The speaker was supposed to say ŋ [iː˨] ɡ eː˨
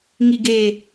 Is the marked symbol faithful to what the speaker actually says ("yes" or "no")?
no